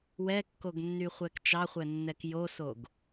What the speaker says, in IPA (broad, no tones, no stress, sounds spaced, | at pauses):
w ɛ kː o ɡ nː y χʷ ɛ k t͡ʃ ɑ χʷ ɛ nː ɛ k j o s o ɡ